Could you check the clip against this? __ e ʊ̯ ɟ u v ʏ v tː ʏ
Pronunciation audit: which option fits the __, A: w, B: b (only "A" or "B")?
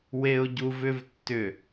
A